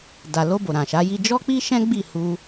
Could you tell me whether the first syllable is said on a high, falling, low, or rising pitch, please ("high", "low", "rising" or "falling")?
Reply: low